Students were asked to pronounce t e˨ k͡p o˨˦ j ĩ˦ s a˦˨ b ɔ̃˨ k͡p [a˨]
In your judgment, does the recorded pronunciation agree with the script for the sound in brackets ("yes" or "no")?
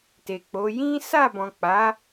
no